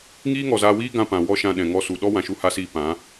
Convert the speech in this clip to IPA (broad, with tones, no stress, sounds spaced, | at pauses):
ŋ iː˦ ŋ ɔ˨ z aː˧ w iː˦ ɡ ã˧ p ã˨ w ɔ˦ ʃ ã˧ ɗ ɛ̃˨ ŋ ɔ˧ s u˨ ɗ ɔ˦ w ã˨ ʃ u˧ h a˧ s iː˧ p ã˨˦